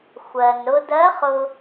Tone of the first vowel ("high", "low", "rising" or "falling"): low